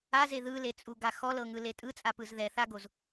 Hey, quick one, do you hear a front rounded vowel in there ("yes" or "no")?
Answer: no